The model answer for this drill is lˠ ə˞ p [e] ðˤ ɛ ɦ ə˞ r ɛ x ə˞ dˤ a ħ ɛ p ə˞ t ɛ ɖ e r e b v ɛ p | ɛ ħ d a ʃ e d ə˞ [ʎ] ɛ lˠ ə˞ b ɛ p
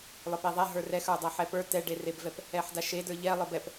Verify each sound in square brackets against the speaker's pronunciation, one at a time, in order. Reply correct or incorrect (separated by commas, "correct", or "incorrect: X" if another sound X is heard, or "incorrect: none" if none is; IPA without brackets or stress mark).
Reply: correct, correct